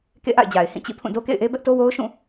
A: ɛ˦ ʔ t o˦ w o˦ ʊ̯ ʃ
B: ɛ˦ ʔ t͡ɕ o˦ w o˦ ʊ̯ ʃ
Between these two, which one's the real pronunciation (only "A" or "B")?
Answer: A